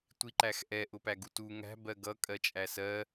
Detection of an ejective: present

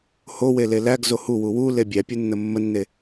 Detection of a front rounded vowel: absent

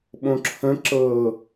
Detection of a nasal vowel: present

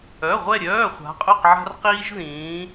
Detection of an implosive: absent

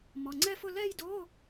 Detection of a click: present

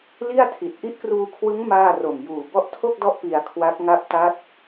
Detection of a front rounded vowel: absent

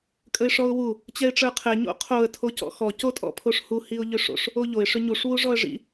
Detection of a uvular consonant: present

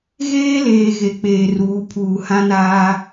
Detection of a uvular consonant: absent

